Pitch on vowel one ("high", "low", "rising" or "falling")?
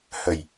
low